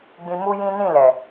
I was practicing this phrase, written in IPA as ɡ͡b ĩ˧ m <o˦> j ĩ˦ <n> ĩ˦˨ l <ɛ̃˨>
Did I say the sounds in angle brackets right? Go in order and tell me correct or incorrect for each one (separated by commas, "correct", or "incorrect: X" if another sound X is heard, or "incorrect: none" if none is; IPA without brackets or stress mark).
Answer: incorrect: u˦, correct, incorrect: ɛ˨